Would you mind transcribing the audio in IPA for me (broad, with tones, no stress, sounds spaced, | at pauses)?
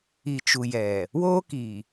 i˨ t͡ʃ u˨ j ɛ˨ | w oː˦ k i˨